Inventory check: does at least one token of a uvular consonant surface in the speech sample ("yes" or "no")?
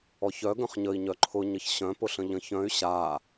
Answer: yes